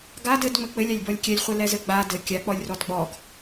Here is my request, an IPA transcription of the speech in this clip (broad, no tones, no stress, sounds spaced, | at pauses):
ɡ a d ɘ d ŋ͡m ɘ k͡p ɘ lʲ a lʲ b ɔ lʲ kʲ ɛ lʲ χʷ ɘ l ɛ z ɘ ɡ͡b a d ɘ kʲ a k͡p ɔ lʲ r ɔ d ɡ͡b ɔ ɡ